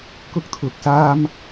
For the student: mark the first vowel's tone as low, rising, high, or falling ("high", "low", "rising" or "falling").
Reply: high